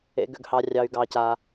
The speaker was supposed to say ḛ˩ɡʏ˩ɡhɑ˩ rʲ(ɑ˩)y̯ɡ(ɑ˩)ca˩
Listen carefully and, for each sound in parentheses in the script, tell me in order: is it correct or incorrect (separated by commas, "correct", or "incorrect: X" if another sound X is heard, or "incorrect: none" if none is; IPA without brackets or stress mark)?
correct, correct